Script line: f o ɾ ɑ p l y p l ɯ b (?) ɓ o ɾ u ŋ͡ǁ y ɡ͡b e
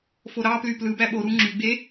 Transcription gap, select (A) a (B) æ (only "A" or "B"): B